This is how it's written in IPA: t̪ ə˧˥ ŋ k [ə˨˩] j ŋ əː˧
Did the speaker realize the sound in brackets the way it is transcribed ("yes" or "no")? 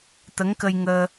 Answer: no